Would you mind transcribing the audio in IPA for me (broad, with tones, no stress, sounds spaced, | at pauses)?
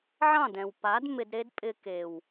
ʕ ɑ̃˦˨ d ɛ̃˨ w p a˨˦ d m ɪ˧ d ɾ e˦ d pʼ ɪ˧ k e˨ w